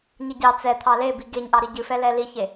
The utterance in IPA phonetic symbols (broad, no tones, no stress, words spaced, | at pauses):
ɲɨɟɑ t͡sɛt̪ʰɑ lebi ɡeɲʔɑ ɾiɟɨfɛ lɛliçe